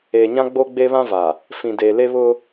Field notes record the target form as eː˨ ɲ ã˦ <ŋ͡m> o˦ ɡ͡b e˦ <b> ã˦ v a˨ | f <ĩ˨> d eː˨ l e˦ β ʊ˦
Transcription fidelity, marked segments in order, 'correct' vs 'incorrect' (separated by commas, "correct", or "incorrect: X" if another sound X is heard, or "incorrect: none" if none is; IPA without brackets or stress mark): incorrect: ɡ͡b, incorrect: β, correct